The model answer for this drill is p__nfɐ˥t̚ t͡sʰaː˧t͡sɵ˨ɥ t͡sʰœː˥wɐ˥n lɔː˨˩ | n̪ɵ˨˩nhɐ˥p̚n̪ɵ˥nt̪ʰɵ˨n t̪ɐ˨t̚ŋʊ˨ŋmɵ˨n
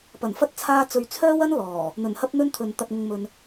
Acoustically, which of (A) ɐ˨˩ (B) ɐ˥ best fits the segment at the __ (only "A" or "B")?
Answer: A